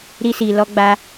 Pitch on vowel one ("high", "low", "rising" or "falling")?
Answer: high